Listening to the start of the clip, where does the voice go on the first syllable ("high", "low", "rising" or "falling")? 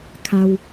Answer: low